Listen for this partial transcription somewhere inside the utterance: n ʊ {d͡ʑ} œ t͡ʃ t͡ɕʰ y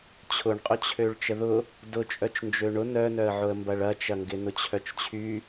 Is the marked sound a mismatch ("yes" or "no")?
yes